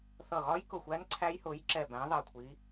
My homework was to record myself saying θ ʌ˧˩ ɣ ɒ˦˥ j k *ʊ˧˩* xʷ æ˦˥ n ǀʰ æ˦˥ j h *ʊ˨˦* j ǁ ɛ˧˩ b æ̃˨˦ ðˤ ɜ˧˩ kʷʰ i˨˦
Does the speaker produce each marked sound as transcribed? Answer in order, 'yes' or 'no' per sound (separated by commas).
yes, yes